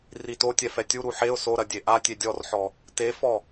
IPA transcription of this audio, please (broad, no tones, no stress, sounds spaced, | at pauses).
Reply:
r i t o tʲ ɛ f ɛ tʲ u ɾ u ħ e ʊ̯ s o ɾ ɐ dʲ e ʔ a tʲ e dʲ ɔ r ħ ɔ | t e f ɔ